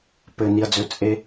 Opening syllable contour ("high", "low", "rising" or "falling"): low